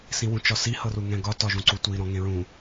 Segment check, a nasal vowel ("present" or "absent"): present